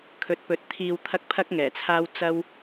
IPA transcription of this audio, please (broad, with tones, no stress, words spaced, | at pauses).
kʰɵ˨˥t̚pɵ˨˥t̚ t̪ʰiː˨wt̪ʰɐ˧k̚ pʰɐ˥k̚ŋɛː˨˩t͡sʰaː˥w t͡sɐ˥w